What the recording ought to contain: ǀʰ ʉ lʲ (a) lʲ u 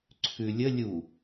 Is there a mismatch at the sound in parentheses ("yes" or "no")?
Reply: yes